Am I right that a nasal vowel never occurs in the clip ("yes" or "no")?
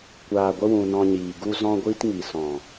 no